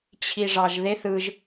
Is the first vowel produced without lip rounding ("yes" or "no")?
yes